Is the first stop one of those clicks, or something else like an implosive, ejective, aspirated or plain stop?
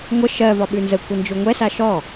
implosive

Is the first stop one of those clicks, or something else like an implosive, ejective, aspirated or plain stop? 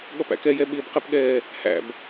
implosive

